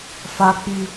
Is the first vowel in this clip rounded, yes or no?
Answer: no